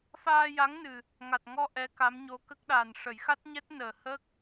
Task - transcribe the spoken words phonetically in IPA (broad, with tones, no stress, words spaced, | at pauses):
faː˧ja˧˥ŋnɨ˨˩ | ŋa˨˩t̚ŋɔ˧ ʔɛ˧˥ka˧˥m ɲo˧˥kə˦˥k̚ɗa˨˩n ʂə˨˩˦jxa˦˥t̚ɲɛ˦˥t̚ nəː˨˩hə˦˥k̚